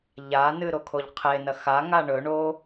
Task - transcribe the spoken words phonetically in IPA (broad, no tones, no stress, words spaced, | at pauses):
ʎanɨ ɾokʰoʎqʰenɐ xa ŋaɳɵɳo